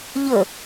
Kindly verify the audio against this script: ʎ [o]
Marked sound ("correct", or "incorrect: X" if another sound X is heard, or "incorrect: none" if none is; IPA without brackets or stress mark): incorrect: ɵ